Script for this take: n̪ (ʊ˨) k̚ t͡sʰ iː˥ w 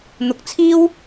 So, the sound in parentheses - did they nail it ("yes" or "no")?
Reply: yes